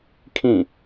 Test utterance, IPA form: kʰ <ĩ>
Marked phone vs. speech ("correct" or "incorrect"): correct